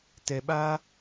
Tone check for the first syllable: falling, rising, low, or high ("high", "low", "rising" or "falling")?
low